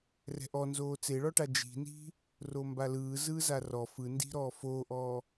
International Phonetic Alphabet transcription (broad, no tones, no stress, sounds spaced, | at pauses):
r ɛ̤ ʔ ɔ n z oː t͡s e ɭ ɔ ʈ a d͡ʒ i̤ n i̤ | r o m b a l ɯː z ɯː z a r ɔ f ɯ n d i̤ ɾ ɔː f oː ʔ ɔː